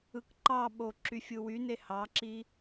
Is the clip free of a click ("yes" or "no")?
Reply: no